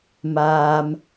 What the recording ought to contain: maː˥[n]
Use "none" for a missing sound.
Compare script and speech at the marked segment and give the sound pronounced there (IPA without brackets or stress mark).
m